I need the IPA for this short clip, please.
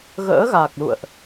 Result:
ɣ ə̰ː˧˥ ɣ a˨˩ k̚ l ṵ˧˨ ə̯ ʔ

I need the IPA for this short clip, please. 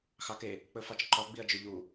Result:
x ɑ k e | k͡p ɵ f ɑ t͡ʃ ǃ ɔ ɡ͡b i ɐ̯ d͡ʒ ɵ ʎ u

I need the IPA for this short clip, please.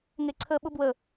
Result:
ŋ e ǀʰ ə ɓ ʊ b w ə

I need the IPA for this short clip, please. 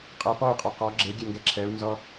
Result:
qʼ ɛ p ɔ y̯ qʼ ɜ q ɔ ɡ͡ǁ e ɡʲ ɛ ŋ ɡ ɛ ǁʰ ɛ u̯ n z ɔ

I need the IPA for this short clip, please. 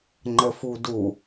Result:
ŋ͡ǃ ə f u d u

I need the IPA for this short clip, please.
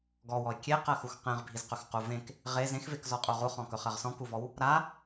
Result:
ɡ ɔ w ɔ ɪ̯ kʲ e q ɜ x u x q ẽ ʁ bʱ i z q ɵ x q u v ẽ k | ʁ e z ẽ x v e k z ɔ qʼ u ʁ u χ ɔ̃ k ɵ χ ɜ ʁ s ɔ̃ k u v ɔ w | ɾ a

